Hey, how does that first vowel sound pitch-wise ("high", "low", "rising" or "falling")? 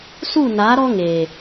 falling